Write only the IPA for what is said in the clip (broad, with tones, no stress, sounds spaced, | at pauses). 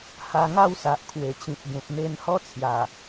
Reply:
h a˧ ŋ a˥˧ w s a˨ ʔ kʰ w e˨˩ t͡ɕ ĩ˨ t̚ ɡ ẽ˨ p̚ n̪ e˧ n h ɔ˦ t͡sʰ j a˨˩